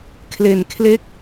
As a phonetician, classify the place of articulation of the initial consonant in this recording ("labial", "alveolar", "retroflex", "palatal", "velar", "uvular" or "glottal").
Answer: velar